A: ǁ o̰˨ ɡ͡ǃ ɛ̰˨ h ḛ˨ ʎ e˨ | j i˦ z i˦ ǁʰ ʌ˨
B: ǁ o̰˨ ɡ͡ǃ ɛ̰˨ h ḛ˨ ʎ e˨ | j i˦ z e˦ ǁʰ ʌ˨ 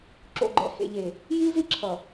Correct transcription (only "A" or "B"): A